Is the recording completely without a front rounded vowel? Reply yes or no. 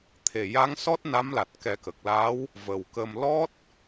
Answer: yes